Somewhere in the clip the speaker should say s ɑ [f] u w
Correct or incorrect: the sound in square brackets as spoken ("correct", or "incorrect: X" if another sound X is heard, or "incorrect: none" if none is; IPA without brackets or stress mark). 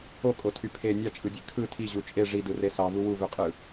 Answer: incorrect: v